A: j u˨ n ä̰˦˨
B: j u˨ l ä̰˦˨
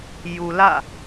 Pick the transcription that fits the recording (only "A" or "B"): B